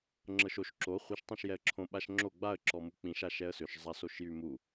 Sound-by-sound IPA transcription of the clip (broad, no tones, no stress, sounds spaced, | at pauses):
ŋ͡ǁ ɤ ʃ o ʃ ǁ o χʷ i ʃ tˤ ã ʃ j ɛ ə̯ ǁʰ õ ɓ a ʃ ŋ͡ǁ o ɡ͡b a ə̯ ǁ ɔ m u k͡p ĩ ʃ a ʃ ɛ ə̯ s ʏ ʃ zˤ a s o ʃ j y m u